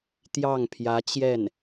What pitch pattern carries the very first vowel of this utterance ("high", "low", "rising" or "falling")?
falling